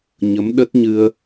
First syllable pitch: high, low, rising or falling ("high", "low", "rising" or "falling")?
rising